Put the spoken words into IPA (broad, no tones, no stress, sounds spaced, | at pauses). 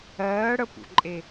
ɜː ɽ ə p ṵ ǃʼ e